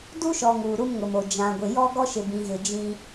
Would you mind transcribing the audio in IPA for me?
d u˦ ʃ ɔ˨ ŋ uː˨ ɾ u˦ m ŋ ʊ˨ m o˨ d͡ʒ ã˨ ɡʷ ɪ˨ j ɔ˦ ɡ ɔ˦ ʃ ɪ˨ b ĩ˨ ɣ ɪ˨ d͡ʒ ĩ˦

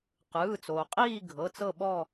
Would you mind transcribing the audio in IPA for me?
q ɯː˩˧˩ t͡s oː˩ qʼ iː˦˨ ɡʱ ɤ˩˧˩ t͡s ɤ˦˨ ɓ ɔ˦˨

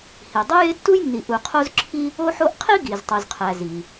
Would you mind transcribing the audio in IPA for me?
h i˩ dˤ o˥ j e˥ tː u˥ j nː i˨ ʔ u˨ qʰ o˥ z ǁʰ i˥ | o˦ ħ o˦ ʔ qʰ i˥ ɡ i˩ z tˤ u˩ z qʰ æ˩ z i˩

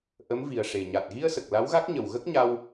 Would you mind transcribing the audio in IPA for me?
ʔ ə˧˥ m v i˨˩ ə̯ ʂ e˨˩ ɲ a˨˩ t̚ ɣ i˧ ə̯ s ə˨˩ k̚ l a˧˥ w ɣ a˦˥ k̚ ɲ ə˨˩ w ɣ ə˦˥ k̚ ɲ a˧ w

